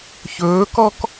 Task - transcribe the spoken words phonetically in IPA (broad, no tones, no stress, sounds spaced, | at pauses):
ç ɵː k ɔ k